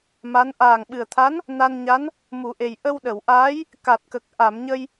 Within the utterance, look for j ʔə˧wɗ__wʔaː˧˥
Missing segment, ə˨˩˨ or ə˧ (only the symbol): ə˨˩˨